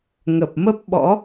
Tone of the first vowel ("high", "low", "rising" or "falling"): low